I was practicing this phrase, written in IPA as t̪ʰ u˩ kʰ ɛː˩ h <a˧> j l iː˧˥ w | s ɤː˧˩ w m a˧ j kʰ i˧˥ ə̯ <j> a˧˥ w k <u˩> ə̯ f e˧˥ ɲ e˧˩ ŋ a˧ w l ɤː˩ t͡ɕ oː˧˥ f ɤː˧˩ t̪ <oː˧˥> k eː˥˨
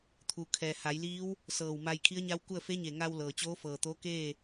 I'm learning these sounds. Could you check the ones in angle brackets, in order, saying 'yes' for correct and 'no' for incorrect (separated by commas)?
no, no, no, yes